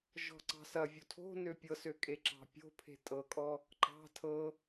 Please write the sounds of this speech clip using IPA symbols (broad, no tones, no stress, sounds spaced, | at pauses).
ʒ ɔ̤ ǀ ɑ̤ s ɐ vʲ o tʰ o̤ n ø pʲ ɤ s ø kʼ e ǁ ɑ̤ pʲ o̤ pʰ e̤ tʼ ɤ kʼ ɔ | ǃ ɑ̤ tʰ ɤ